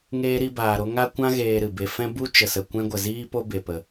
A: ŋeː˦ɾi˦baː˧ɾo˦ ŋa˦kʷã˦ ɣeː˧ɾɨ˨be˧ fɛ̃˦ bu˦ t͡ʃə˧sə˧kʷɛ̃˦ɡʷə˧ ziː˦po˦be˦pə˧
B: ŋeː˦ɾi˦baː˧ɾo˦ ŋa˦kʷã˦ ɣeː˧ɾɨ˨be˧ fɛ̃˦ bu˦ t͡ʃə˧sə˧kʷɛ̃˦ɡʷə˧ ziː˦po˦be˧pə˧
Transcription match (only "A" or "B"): B